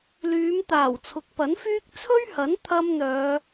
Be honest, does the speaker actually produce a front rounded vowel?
yes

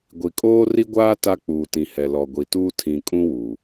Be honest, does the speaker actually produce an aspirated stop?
yes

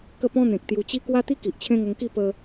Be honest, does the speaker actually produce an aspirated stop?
yes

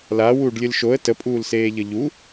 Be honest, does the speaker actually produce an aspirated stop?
no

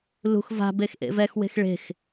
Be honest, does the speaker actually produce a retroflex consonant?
yes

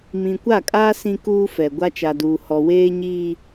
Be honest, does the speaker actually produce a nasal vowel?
yes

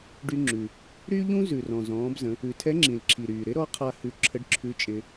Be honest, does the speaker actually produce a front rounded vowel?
yes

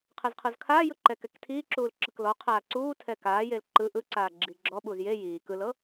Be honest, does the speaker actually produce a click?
yes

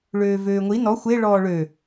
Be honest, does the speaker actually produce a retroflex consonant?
yes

